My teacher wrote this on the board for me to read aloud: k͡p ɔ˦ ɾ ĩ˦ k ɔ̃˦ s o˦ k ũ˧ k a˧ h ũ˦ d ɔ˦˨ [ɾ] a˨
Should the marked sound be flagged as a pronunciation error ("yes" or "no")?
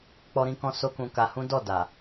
yes